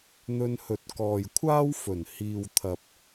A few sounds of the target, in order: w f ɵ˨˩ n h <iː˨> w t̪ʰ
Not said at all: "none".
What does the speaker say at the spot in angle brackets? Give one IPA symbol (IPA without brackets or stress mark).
iː˨